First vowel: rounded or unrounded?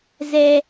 unrounded